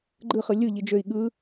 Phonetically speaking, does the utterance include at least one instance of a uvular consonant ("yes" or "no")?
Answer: yes